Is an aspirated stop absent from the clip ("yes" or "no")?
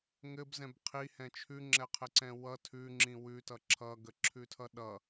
no